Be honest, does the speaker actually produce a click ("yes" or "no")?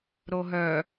no